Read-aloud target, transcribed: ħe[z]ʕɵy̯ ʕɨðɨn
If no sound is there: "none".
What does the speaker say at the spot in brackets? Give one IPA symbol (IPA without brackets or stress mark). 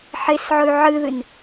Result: s